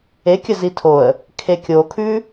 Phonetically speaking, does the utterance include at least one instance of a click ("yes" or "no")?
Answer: no